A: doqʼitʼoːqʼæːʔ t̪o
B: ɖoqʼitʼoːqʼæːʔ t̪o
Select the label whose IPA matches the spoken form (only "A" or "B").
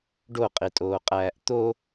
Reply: B